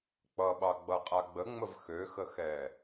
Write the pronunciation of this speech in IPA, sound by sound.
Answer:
k͡pʌɓɑɡ͡bʌ qʼaɡ͡bəŋ͡məv xøxəxɛː

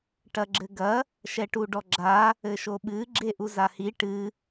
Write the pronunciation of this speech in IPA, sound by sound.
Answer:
ʈɐɡ͡ǁɘɡɐ | ʃɛʈuɖɔɡ͡ǁa | ɘʃoɓɨ ɡ͡ǁeʔuzahi ʈɨ

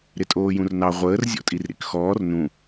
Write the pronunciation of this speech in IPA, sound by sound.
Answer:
ɾɪtʼoːjũrnɑ ʁʷəːr zʲɔ̰tʼirɾḭkxɔːr nũ

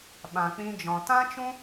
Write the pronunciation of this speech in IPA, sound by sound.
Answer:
ɓã˨k͡pĩ˧d͡ʒɔ̃˨ tã˦t͡ʃũ˦

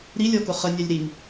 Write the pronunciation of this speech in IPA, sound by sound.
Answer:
ɾilʲɔkʊ χənʲælʲ ɾiŋ

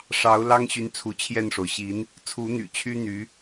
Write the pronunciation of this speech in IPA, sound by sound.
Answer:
ʂɑ˧˥ʊ̯lɑ˥ŋɕy˧˥n t͡sʰu˧˥t͡ɕʰjɛ˥˩nʂo˩ʊ̯ ɕi˧˥n | t͡sʰu˧˥n̪y̰˨˩t͡ɕʰy˥ n̪y˧˥

